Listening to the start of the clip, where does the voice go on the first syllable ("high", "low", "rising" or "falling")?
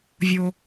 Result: low